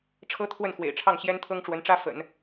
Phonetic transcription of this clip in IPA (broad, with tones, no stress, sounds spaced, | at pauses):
ʈ͡ʂʰ ɤ˥ t̪ʰ w ə˥˩ n x w ḛ˨˩ ɪ̯ ʈ͡ʂʰ ɑ˥˩ ŋ ɕ j ɛ˥ n t̪ʰ ɤ˥ ŋ ʈ͡ʂ w ə˧˥ n ʈ͡ʂ ä˥ f ə̰˨˩˦ n